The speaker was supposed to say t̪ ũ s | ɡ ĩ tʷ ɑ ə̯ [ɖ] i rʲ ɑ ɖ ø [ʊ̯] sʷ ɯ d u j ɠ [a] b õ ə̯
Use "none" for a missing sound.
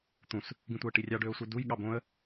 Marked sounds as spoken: ʈ, ʊ̯, ɑ

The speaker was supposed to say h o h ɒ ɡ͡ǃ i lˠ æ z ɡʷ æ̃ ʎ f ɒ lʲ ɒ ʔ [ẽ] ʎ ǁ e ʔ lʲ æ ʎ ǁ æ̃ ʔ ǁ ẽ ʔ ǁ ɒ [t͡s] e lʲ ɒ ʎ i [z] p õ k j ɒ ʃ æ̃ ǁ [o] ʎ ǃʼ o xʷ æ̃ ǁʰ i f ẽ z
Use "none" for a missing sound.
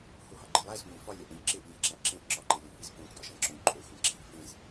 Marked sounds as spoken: ẽ, ǃ, z, õ

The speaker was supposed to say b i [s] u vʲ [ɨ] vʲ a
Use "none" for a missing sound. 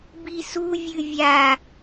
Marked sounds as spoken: s, ɨ

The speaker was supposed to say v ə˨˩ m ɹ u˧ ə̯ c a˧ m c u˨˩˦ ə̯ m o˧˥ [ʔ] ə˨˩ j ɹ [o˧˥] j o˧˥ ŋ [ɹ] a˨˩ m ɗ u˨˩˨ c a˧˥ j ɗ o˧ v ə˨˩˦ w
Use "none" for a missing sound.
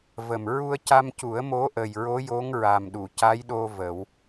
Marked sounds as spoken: ʔ, o˧˥, ɹ

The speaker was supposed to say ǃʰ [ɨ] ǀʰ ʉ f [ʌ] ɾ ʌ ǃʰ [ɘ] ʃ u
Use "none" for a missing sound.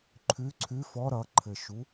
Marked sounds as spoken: ʉ, ɔ, ɘ

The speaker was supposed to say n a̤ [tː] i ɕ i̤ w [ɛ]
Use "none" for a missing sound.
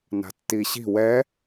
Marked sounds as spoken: tː, ɛ

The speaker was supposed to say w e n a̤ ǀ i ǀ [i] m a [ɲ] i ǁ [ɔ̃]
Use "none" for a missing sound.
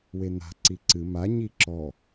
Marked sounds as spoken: ɨ, ɲ, ɔ

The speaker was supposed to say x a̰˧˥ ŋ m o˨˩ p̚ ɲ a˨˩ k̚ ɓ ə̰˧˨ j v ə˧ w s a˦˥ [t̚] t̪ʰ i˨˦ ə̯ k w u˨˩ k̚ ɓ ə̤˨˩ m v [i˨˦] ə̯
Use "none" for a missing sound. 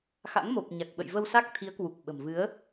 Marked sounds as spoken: k̚, ɨ˨˦

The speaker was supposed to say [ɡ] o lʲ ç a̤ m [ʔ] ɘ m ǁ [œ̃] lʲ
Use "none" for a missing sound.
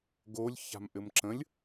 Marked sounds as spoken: ɡ, ʔ, ə̃

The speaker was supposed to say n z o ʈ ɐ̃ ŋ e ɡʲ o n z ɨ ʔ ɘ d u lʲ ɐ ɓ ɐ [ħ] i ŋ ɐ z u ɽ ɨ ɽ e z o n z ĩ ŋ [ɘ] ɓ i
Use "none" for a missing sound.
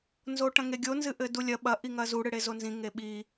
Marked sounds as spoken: ʔ, e

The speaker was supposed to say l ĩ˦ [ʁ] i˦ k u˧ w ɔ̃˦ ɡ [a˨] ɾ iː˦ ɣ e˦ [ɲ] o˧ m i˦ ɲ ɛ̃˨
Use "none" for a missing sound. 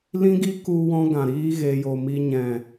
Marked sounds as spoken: ɡ, ã˨, j

